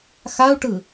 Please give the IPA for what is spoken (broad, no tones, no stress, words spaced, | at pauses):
xau̯ʈɯ